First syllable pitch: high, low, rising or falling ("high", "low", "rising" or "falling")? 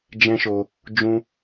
high